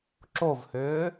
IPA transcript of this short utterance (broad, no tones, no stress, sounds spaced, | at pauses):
ǁ o v h ʏː